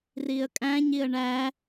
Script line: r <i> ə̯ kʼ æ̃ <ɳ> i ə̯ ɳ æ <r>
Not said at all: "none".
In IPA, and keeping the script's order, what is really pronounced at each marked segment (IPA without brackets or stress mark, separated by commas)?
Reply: i, ɲ, none